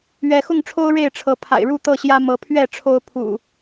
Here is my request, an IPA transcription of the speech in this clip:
ɥ ɛ˨˦ x ʊ˥˨ ŋ ʈ͡ʂʰ o˦ ʊ̯ ɻ e˥˨ ɪ̯ ʈ͡ʂʰ ɤ˨˦ pʰ a̰˨˩ ɪ̯ ɻ u˥˨ t̪ ɤ˥˨ ɕ j ä˦ m ɤ˨˦ pʰ ɥ ɛ˥˨ ʈ͡ʂʰ o˦ ʊ̯ pʰ ṵ˨˩

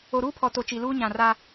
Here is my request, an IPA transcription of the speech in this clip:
o˨ ɾ uː˦ pʰ ɔ˨ t o˨ t͡ʃ i˨ l uː˦ ɲ ã˨ r a˦

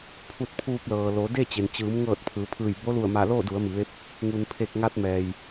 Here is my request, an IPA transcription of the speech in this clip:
pʰ u˧ t̚ pʰ uː˧ p̚ l ɤː˩ l o˩˧ d e˥˨ t͡ɕ e˩ n t͡ɕ ɯː˩˧ m ŋ ɤː˧˩ t̚ pʰ ɯː˩˧ pʰ ɯː˧˩ j b o˧˥ l u˧˩ ə̯ m a˧˩ l oː˥˨ d u˩˧ ə̯ m i˩ ʋ e˧˥ p̚ | ŋ u˩ n pʰ e˧˩ k̚ ŋ a˧ t̚ m ɛː˩ j

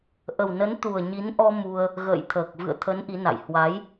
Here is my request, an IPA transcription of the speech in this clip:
ʔ ə˨˩ w n ə˨˦ n t̪ u˨˩ ə̯ ɲ i˨˦ n ʔ ɔ˧ m u˧ ə̯ | ɣ ə̰ː˧˨ j t̪ʰ əː˨˩ k̚ v ɨ̰˧˨ ə̯ t̪ʰ ə˨˦ n ʔ i˨˦ n a̰˧˨ j h w a˨˦ j

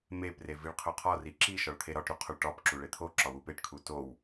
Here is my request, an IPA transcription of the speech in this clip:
m e p r e v i ɭ qʰ o qʰ ɒ r i ǁ i ʃ ɒ ɭ t̪ʰ e ɾ ɒ ʈ ɾ u qʰ o ɭ ʈ ɒ p ǁ u ɭ e t̪ʰ o ǁ ɒ w u p e ʈ kʰ u t o w

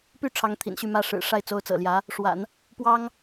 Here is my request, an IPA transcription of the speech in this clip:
p y˥˩ ʈ͡ʂʰ ɑ˧˥ ŋ t̪ʰ ḭ˨˩ n ɕ y˥˩ m ä˥ ʂ ɻ̩˨˩ ʂ a˥˩ ɪ̯ t͡s o˧˥ ʊ̯ t͡s ɤ̰˨˩ l j ä˧˥ | ʂ w a̰˨˩˦ n | p w ɑ˥ ŋ

